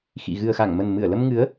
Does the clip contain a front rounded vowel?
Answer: no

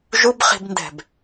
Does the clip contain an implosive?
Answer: no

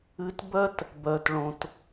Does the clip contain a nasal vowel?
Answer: yes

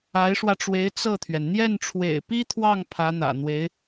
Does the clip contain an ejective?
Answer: no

